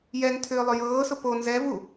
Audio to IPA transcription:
j ɛ ŋ tʰ ʏː lˠ ʏ j ɤː s ʊ p o n z ɛ v u

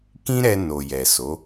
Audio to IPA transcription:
k ĩ˦ ɾ ɛ˧ n o˨ j ɛ˨ s o˨˦

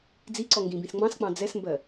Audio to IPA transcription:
d͡z i ǀ ɔ ŋ ɡ ĩ b ĩ s ŋ͡m ɑ̃ s k͡p ɑ̃ d͡z ɛ s m b ɜ

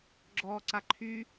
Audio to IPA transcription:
ɡ͡ǁ ɔː ǀ a ǃʰ y

